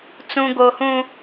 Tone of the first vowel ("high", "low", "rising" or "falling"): high